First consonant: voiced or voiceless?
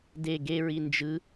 voiced